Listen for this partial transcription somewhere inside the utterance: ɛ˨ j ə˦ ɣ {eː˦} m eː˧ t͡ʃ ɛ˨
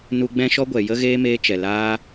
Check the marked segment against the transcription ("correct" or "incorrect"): correct